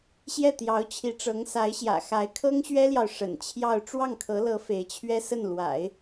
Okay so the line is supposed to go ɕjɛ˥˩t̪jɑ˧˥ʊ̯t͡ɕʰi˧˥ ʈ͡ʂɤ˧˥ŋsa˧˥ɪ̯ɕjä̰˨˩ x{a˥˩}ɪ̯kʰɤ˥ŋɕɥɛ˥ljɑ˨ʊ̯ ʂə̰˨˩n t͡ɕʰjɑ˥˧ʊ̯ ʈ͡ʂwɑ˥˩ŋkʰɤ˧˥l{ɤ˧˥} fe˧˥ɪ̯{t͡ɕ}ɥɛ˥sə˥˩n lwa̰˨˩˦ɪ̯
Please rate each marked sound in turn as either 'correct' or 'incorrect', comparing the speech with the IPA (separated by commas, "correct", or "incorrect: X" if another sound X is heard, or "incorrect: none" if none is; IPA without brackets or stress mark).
incorrect: a˧˥, correct, incorrect: t͡ɕʰ